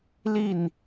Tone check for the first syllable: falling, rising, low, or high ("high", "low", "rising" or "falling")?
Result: falling